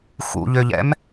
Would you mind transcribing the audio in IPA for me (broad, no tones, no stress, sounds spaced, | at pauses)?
x ṵ ʎ ø ʎ ɛ̰ m